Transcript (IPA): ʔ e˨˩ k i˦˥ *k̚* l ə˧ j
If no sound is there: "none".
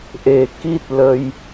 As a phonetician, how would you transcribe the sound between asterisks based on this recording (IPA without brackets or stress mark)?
t̚